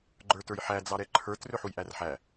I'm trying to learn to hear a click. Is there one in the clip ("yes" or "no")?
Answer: yes